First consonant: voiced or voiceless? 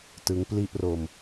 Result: voiceless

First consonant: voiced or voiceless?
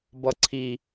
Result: voiced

